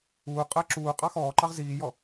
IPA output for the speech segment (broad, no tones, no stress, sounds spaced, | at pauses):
uː qʼ əː ǁ uː qʼ ɑ x ɔː ǃ ɑ ʁ z iː j ɔ